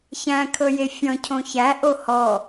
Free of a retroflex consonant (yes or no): yes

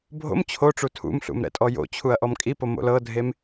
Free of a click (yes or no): yes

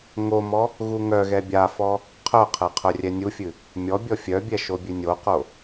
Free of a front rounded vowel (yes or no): no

